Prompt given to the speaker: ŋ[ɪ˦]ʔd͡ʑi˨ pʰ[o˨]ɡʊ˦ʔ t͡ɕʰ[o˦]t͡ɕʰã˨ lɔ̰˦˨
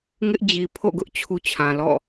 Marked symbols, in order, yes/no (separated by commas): yes, no, no